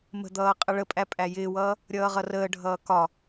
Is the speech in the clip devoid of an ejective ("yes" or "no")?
no